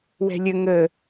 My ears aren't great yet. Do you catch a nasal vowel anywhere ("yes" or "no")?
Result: no